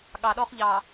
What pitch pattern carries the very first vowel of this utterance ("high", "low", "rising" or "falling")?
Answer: low